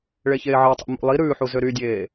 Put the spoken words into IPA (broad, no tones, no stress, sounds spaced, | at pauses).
ɭ e ç eː ʕ ɑ tˤ ṵ m ṵ lˠ i ɾ ʉː ħ u z ø ɾ y dʲ eː